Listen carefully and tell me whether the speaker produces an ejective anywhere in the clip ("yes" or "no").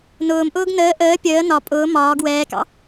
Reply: yes